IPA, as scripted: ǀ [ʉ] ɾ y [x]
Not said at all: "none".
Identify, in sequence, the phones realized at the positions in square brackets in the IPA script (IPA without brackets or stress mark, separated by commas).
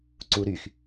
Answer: u, x